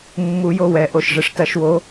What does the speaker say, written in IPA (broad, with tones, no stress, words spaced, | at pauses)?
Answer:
mːu˨˩˦jo˩˧˩wɛ˨˩˦ ʔo˩˧˩ʃʐɘ˨˩˦ʂtɐ˨˩˦ʃwo˨˦